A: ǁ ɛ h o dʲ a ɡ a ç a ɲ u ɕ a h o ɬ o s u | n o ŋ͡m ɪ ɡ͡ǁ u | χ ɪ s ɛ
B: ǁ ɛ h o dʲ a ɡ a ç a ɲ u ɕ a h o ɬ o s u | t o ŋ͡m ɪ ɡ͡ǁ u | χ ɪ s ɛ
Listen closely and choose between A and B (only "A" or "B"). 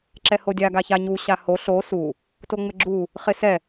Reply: B